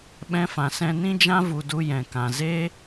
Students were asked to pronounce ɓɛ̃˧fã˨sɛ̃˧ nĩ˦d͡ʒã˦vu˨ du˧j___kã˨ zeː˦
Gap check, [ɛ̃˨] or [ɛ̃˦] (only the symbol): ɛ̃˨